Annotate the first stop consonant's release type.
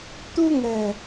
plain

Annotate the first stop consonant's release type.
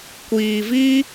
plain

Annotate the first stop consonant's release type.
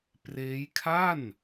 plain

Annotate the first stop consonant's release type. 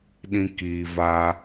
implosive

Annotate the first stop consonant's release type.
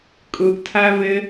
ejective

